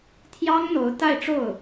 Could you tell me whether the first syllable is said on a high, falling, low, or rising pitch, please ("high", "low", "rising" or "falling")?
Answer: high